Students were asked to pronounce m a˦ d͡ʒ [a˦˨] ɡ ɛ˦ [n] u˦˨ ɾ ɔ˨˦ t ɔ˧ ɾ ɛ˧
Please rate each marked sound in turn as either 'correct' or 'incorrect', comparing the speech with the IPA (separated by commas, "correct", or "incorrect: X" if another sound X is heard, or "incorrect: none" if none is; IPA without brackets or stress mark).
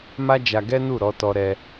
incorrect: a˧, correct